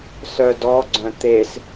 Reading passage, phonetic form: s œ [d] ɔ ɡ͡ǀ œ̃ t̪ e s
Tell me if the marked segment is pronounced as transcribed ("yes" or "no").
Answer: yes